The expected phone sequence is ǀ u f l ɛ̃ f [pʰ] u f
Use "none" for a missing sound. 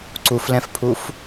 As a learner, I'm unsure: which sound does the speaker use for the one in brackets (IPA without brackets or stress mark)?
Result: pʰ